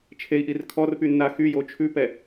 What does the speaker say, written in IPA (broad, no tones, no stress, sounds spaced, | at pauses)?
t͡ʃʰ e i̯ ʔ i r kʰ ɔ r p y nː a x y j o t͡ʃʰ ʉ p ɛ